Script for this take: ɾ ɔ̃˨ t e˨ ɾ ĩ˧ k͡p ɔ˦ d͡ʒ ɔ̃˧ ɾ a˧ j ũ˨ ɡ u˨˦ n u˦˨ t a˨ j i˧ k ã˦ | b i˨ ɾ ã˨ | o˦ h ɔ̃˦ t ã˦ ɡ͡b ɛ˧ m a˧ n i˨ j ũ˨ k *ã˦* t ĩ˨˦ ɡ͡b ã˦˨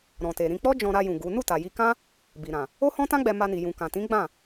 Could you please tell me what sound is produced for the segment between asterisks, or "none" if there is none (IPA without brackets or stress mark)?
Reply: ã˨